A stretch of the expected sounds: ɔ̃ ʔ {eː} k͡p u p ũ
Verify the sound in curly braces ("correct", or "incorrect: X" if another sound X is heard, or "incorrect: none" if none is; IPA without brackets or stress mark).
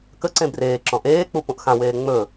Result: correct